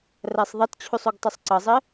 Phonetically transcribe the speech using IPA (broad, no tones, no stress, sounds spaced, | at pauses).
r æ sˤ ðˤ ʌ t t͡ɕʰ u sˤ u ɡ tˤ ʊ sˤ ǀ ʌ zˤ ɪ